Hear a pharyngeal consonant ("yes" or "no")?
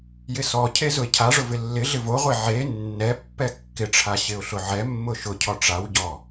yes